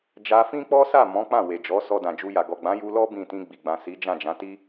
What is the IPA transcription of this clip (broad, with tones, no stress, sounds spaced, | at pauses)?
d͡ʒ a˧ f ĩ˦ k͡p ɔ˦ s a˦˨ m ɔ̃˨˦ k͡p ã˦˨ w e˨ d͡ʒ ɔ˨˦ s ɔ˧ d ã˨ d͡ʒ u˧ j a˨ ɡ ɔ˨ ɡ͡b ã˨˦ j u˧ l ɔ˦ b ĩ˦˨ t ĩ˧ ɡ͡b i˨ ɡ͡b ã˨ s i˨˦ d͡ʒ ã˦˨ d͡ʒ ã˨˦ t i˦